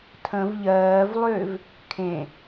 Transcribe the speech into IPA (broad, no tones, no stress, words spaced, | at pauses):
tʰə̃v ʎɜːvlˠʏːv | kʰẽ